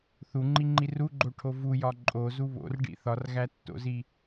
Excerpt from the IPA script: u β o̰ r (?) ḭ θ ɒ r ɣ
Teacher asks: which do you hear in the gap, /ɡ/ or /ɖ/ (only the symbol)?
ɖ